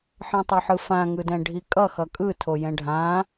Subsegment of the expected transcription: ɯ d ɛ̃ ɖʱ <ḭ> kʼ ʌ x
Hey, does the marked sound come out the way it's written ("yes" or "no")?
no